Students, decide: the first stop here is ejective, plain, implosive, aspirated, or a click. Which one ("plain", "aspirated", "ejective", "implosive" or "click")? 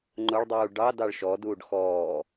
click